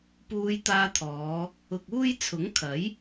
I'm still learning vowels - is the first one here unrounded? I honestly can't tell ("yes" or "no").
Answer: no